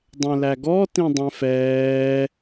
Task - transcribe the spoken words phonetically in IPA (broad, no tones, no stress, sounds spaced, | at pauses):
dˤ ɛ̃ l æ ɡ ɔ t ĩ dˤ ɛ̃ f ɛː